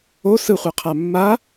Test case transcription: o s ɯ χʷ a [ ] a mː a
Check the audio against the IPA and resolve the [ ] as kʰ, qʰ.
qʰ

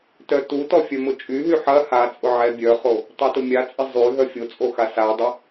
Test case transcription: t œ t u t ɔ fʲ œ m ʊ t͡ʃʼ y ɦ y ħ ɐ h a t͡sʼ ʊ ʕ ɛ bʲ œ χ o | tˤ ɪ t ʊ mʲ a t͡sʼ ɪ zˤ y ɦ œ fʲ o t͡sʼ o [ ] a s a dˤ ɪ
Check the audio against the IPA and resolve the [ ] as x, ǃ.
x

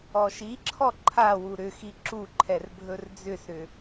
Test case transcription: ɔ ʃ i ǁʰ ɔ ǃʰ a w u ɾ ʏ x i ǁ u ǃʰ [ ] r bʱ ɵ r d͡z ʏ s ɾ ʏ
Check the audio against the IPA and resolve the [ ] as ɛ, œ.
ɛ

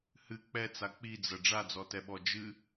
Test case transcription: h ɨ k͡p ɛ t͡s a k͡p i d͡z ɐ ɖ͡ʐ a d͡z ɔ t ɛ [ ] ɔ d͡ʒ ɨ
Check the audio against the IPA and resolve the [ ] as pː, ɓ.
ɓ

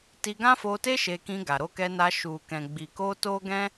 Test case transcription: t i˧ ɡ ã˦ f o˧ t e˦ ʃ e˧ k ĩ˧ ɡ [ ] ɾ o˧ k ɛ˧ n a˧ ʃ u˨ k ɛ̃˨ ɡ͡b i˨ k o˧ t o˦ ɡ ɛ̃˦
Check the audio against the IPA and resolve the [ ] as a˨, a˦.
a˨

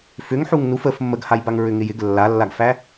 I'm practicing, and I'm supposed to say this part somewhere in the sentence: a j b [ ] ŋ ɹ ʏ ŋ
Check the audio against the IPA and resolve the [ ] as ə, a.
a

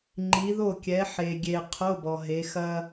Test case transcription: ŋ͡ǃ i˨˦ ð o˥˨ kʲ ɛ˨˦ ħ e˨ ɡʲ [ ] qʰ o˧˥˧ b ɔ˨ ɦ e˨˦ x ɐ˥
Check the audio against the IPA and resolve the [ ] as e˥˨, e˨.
e˨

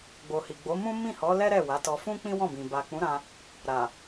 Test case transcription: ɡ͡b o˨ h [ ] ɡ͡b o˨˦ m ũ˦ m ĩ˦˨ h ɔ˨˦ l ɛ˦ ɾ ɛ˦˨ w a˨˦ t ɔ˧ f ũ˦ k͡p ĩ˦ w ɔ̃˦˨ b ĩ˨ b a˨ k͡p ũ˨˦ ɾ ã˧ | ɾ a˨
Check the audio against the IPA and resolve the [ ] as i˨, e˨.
i˨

